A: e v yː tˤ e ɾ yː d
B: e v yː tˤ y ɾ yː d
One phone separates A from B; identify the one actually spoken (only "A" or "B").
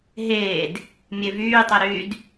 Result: A